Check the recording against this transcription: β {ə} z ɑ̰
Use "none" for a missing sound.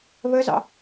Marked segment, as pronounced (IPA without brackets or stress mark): ə